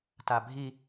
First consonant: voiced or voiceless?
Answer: voiceless